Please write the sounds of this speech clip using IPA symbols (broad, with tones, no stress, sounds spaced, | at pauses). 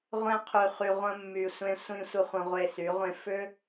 ʁʷ ẽ˧ qʰ y˨ χ y˨ ʁʷ ə̃˧ mː y˨ sʷ ẽ˧ sʷ ĩ˧ sʷ ɘ˧ χʷ ə̃˧ ʁʷ e˧ s y˨˦ ʁʷ ẽ˦ f ʏ˦